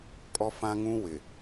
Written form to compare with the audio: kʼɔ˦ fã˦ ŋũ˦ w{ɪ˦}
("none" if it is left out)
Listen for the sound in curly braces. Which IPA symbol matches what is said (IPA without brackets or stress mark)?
ɪ˨